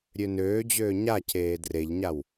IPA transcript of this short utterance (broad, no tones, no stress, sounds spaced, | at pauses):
ɾʲ ø n øː d͡ʑ øː ɲ a c eː d r e ʎ ɲ a w